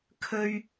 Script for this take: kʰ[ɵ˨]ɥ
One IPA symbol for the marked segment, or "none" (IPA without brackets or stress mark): ɵ˥